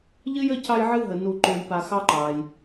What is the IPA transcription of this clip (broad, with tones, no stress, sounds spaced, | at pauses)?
ʎ ɨ˥ j ə˦ c ɑ˦ j ʕ ɨ˦ ɦ ə˩ n u˨ ǃ o˨ j p a˨ x ɑ˥ ǃ ɑ˩ j